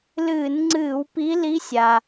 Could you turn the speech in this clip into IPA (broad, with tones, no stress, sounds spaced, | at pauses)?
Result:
l ɨː˧˩˧ n ŋ͡ǀ ɨː˧˩˧ w p i˧˥ l i˧˥ sʲ a˩